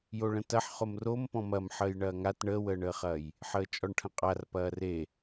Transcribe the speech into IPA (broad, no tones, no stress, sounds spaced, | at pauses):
j o ɭ ə̃ t ɐ ħ χ o m r o m p ɔ̃ m ɐ m ħ əː j ɳ ɐː ŋ a t ɳ əː w əː ɳ əː χ ɐː j | ħ əː t͡ʃʼ ɔ ɳ ʈʰ ə̃ qʼ a r p ɐː r e